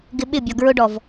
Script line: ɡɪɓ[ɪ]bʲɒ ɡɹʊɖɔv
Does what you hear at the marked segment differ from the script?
no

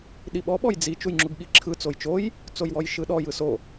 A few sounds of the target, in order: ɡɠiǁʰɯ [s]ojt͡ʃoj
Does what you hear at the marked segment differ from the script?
yes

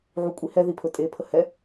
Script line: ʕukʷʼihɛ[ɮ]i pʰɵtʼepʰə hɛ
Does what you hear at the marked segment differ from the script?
yes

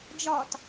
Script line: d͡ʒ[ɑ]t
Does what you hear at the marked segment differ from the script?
yes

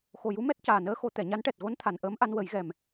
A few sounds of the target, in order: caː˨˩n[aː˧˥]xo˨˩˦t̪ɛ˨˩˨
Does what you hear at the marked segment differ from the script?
yes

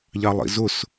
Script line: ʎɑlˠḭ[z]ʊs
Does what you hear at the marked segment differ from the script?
no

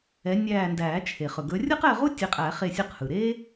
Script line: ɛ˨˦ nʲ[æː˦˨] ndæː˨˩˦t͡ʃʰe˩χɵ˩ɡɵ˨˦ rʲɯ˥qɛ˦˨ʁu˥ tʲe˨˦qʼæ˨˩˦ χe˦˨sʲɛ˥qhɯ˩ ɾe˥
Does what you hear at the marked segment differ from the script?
no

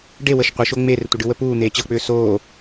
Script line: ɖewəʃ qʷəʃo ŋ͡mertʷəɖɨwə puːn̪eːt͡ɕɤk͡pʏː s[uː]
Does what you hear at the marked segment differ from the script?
yes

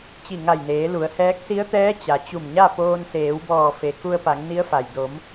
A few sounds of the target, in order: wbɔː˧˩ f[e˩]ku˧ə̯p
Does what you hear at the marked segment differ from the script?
no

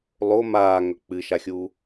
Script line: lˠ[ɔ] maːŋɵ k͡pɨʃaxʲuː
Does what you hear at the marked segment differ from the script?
yes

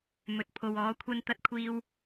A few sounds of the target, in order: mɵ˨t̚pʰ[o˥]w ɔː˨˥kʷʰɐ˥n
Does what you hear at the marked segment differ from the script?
yes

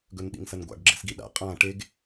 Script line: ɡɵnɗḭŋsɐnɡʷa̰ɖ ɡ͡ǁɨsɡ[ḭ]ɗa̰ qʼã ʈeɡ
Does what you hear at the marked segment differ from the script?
yes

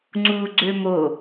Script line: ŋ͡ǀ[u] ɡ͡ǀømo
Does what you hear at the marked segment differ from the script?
no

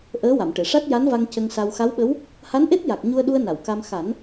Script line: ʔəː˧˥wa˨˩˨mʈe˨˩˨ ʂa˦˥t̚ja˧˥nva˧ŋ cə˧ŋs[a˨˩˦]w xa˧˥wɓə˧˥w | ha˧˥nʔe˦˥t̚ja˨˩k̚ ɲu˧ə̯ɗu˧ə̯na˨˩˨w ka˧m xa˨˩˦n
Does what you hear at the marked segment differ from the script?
yes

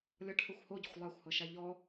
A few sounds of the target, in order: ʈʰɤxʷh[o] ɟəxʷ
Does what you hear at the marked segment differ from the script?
no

